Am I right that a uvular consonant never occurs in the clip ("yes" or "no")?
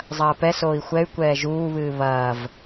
yes